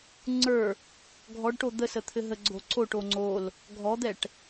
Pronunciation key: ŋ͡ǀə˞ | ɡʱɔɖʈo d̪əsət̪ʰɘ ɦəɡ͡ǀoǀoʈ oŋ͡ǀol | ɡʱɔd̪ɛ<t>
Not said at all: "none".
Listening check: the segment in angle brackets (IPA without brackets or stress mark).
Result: ʈ